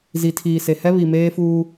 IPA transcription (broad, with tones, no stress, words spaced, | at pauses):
zi˨tʰiː˨se˨ hɛ˦βi˨ meː˦fuː˦